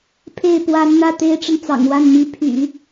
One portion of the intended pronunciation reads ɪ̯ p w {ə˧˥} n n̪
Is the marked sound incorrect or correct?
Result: incorrect: a˧˥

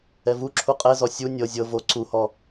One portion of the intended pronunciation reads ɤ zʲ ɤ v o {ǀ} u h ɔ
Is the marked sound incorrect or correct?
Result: correct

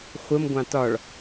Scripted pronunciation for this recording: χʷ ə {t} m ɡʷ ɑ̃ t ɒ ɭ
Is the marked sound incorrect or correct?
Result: incorrect: none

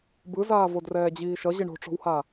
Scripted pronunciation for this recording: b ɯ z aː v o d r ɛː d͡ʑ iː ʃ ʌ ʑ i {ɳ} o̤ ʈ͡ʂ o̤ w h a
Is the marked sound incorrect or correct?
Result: correct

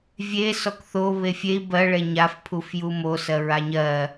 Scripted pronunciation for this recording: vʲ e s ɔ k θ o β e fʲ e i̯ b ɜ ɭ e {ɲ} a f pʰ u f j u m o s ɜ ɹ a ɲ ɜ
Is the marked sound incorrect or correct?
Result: correct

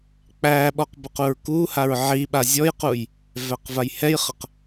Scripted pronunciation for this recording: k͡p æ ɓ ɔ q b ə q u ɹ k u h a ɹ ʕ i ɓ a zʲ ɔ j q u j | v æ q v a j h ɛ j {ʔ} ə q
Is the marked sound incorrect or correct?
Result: incorrect: χ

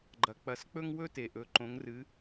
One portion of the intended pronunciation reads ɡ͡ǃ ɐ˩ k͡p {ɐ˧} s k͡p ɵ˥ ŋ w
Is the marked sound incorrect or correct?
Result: incorrect: ɐ˩˧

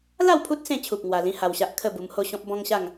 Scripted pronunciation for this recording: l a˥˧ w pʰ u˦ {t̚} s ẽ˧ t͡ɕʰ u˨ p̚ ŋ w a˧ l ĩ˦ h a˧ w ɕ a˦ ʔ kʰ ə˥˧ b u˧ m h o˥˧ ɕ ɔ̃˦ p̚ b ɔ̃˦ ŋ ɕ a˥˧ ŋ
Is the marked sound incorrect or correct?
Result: correct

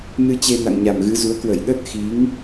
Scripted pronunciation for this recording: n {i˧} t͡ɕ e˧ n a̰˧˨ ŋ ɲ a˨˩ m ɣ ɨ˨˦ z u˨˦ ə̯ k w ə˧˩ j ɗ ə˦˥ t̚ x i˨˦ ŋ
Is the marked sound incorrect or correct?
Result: incorrect: ɨ˧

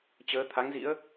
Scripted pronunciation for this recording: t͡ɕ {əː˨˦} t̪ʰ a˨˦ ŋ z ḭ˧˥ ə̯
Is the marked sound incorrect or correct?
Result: correct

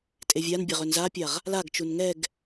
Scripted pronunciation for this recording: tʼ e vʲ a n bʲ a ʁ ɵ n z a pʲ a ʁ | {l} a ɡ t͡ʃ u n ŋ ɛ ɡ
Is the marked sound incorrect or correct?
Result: correct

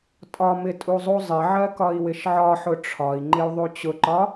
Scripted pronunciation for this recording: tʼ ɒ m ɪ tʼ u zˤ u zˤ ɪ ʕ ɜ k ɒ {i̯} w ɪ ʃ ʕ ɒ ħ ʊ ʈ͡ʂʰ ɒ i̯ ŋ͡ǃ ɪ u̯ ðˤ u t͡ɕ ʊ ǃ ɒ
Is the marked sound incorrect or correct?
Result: correct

